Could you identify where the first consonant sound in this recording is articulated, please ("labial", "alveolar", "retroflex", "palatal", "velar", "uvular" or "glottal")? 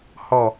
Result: glottal